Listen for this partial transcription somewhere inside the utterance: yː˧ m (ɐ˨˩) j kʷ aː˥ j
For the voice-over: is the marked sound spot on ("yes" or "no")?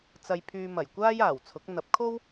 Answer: yes